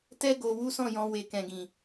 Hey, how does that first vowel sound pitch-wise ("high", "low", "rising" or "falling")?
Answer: high